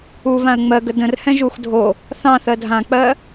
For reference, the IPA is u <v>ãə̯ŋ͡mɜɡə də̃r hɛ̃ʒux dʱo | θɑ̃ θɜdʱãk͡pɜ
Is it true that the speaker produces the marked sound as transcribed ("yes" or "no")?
yes